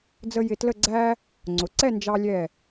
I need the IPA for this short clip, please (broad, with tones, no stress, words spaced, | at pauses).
d͡zə˧ jɪ˧tlə˥˧ ɡ͡ǀæ˥ | ŋ͡ǀʊ˩˧ǀɛ˥˧nd͡ʒɑ˧lʲɛ˧˩